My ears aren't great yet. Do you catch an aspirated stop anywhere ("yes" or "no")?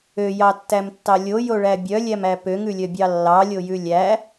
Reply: no